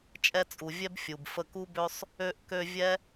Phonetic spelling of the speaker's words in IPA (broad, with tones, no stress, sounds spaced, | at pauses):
t͡ʃʼ ɛ˧ t͡sʼ u˨ vʲ ɛ˦ b fʲ u˨ b f ə˧ k u˦ b ø˦ sˤ | ø˧ ʔ k ø˧ vʲ ɛ˦